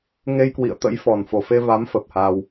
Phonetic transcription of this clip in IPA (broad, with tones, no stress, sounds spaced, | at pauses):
ŋ e˧ j k w ḭ˧˨ ə̯ t̪ ə̰˧˥ j f ɔ˨˩ n f o˨˩ f e˧ v a˨˦ m f ə˨˩ p̚ h a˧ w